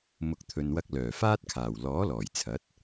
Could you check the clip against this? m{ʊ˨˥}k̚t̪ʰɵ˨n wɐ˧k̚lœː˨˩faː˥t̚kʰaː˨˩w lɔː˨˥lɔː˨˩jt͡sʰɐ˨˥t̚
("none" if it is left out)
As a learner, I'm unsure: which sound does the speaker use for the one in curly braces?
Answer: ʊ˨˥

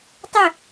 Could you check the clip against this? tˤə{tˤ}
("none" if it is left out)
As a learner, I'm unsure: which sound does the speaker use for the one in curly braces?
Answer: none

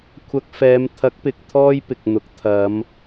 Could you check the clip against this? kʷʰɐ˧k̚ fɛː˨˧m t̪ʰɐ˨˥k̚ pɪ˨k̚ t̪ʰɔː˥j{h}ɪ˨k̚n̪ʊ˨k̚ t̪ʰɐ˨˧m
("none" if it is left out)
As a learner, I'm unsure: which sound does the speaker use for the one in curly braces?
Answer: p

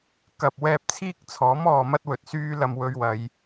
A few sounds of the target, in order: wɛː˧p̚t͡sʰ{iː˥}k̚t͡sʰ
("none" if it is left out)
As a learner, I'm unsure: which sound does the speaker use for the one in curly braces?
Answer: iː˥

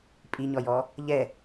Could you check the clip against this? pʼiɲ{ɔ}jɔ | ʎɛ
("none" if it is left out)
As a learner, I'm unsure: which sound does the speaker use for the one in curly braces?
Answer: ɔ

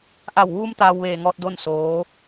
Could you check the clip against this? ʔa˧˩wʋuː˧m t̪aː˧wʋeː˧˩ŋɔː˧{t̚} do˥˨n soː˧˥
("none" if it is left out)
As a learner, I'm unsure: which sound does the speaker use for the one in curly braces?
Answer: t̚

